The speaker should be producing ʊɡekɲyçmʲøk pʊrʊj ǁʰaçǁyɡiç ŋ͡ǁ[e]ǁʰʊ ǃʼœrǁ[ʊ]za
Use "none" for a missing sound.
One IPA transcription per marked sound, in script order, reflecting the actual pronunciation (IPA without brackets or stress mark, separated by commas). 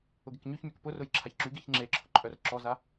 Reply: e, ɔ